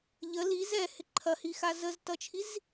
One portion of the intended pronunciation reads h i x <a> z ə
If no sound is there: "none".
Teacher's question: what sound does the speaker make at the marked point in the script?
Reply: a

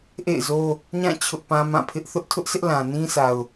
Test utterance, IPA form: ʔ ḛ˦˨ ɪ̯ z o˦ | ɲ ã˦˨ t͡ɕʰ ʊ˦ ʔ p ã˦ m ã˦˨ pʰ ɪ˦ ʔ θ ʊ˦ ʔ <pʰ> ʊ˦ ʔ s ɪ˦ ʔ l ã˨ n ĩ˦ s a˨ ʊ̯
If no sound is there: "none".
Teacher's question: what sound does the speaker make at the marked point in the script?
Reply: tʰ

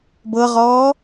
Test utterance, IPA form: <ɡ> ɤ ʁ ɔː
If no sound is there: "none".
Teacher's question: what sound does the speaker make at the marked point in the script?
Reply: b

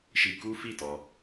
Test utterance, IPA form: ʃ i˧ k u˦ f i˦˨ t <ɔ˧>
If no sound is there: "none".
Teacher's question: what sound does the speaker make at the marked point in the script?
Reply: ɔ˧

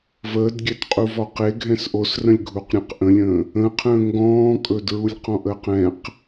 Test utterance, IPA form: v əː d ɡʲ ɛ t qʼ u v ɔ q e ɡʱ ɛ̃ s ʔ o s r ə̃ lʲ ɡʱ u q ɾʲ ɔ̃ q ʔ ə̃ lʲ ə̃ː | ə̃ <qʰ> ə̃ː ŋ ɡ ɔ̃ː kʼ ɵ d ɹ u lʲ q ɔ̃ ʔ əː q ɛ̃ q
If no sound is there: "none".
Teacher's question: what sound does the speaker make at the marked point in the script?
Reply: qʰ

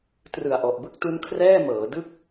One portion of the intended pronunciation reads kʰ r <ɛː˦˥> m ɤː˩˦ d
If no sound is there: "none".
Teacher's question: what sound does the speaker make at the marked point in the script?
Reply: ɛː˥˩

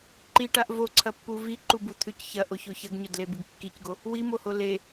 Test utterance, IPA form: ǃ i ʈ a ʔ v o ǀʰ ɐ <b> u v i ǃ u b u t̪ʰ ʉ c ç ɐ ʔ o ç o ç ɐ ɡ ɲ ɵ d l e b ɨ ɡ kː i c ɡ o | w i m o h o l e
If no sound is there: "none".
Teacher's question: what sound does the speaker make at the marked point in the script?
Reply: pː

